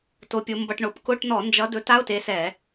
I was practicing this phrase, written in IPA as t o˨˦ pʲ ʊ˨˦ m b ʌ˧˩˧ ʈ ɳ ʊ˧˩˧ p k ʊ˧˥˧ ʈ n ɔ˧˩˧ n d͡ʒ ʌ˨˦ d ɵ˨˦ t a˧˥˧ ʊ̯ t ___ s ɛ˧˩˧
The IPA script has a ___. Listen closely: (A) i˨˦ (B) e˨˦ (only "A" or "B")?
B